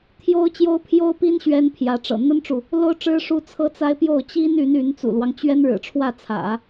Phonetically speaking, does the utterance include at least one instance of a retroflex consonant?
yes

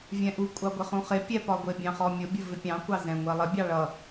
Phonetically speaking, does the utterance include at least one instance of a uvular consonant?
yes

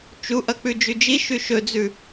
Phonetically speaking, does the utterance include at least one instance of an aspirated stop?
no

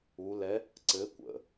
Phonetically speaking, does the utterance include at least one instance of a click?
yes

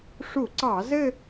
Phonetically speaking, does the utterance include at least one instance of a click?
yes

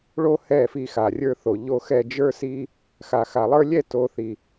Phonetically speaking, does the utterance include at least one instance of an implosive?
no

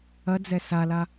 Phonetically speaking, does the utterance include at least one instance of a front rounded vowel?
no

